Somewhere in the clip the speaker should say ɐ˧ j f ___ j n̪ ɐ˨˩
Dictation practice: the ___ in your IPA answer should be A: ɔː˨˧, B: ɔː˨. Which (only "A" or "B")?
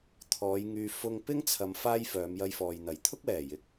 B